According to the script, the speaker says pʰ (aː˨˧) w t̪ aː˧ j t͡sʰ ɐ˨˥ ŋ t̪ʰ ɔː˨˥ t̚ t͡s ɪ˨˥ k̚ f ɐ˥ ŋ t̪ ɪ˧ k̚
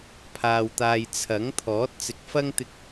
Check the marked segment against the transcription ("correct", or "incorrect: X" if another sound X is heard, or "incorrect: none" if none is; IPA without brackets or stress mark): incorrect: aː˧